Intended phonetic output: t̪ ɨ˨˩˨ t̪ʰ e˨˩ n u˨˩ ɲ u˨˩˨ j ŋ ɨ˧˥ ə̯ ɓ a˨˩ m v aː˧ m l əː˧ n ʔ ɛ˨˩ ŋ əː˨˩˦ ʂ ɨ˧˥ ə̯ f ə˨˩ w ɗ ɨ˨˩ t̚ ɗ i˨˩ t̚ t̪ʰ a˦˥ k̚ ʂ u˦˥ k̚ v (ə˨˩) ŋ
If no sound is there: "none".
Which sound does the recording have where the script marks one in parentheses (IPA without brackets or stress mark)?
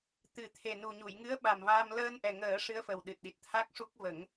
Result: ə˨˩˦